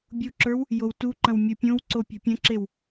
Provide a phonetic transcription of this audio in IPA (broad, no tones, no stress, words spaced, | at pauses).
bʲuǁə˞w | jowtuǃɐ̃w mʲupʲõwǀo pʲɔ̤pʲɐ̃ǁew